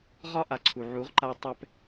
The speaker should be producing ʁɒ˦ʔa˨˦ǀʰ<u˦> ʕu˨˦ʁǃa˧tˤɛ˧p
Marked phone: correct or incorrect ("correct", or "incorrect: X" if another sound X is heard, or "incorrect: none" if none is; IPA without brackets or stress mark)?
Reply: incorrect: u˨